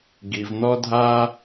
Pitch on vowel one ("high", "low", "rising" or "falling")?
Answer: low